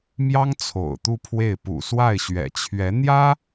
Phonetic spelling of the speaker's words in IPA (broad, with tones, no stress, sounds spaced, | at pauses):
m j ɑ˥ ŋ t͡sʰ o̰˨˩ ʊ̯ t̪ u˥˧ pʰ w e˥˩ ɪ̯ p ṵ˨˩ s w a˥˩ ɪ̯ ɕ ɥ ɛ̰˨˩ t͡ɕʰ ɥ ɛ˧˥ n̪ j ä˥